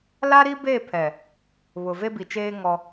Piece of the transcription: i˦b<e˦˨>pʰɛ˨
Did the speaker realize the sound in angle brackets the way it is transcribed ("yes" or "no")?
yes